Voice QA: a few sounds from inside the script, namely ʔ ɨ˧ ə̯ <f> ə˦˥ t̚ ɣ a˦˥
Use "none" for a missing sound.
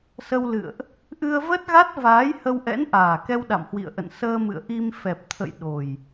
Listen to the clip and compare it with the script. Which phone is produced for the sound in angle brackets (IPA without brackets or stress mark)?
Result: v